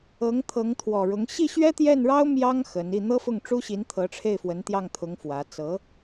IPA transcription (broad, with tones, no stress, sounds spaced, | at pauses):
ɤ˧˥ ŋ t̪ʰ ɤ˧˥ ŋ t̪ʰ w ɔ˨˩ ɻ ʊ˧˥ ŋ ɕ i˥˩ ɕ ɥ ɛ˥ t̪ j ɛ˥˩ n ɻ ɑ˥ ʊ̯ m j ɑ˥ ŋ x ə˧˥ n i˥˩ n̪ ɤ˥ f ʊ˥˩ ŋ ʈ͡ʂ u˥ ɕ i˧˥ n t̪ʰ ɤ˧˥ ʈ͡ʂʰ e˥˩ ɪ̯ f w ə˧˥ n t̪ j ɑ˥˩ ŋ t̪ʰ ʊ˧˥ ŋ f w ä˧˥ t͡s ɤ˧˥